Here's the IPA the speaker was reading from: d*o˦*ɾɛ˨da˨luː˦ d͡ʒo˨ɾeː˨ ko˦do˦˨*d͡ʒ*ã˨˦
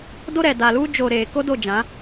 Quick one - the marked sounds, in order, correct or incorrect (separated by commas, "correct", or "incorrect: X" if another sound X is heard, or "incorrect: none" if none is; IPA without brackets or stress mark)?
correct, correct